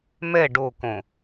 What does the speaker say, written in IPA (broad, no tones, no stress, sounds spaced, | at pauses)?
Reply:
m ɛ ɖ o k õ